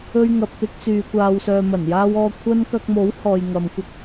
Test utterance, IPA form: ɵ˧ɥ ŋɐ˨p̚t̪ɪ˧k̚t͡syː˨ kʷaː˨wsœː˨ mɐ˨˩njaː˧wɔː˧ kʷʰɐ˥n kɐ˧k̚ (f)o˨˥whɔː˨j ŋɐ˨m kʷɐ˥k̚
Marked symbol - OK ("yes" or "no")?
no